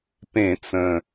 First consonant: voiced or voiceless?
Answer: voiceless